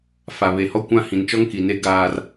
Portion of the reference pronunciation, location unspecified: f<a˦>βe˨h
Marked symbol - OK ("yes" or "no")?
no